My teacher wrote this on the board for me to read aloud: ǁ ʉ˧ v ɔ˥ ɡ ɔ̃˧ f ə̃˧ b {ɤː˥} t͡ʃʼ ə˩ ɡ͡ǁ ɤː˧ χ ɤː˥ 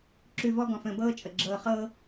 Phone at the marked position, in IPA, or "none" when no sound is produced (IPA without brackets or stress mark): ɤː˥